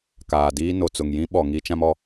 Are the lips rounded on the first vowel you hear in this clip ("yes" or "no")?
no